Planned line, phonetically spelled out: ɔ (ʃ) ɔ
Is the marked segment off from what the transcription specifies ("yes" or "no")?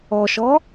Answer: no